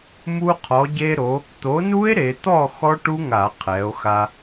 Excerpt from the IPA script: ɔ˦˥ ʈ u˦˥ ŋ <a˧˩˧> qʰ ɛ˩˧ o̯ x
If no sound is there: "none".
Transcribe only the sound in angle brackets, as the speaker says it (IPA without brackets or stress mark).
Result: a˧˩˧